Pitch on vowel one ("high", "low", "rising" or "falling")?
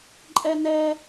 high